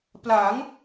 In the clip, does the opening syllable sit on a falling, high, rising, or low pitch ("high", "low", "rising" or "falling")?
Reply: rising